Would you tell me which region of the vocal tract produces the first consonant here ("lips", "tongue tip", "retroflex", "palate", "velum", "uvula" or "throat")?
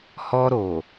throat